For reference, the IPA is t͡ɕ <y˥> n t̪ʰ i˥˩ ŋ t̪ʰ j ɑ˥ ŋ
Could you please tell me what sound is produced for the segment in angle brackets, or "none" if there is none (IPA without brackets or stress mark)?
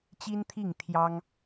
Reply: i˥